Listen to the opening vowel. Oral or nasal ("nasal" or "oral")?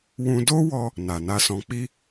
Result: nasal